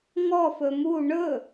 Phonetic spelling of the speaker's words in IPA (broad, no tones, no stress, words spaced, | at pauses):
ŋɔfɵ mu ɳɵ